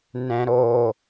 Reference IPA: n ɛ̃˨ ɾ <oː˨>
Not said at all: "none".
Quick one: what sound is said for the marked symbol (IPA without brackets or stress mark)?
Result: oː˨